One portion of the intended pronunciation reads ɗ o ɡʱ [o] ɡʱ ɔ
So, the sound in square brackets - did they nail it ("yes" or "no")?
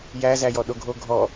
yes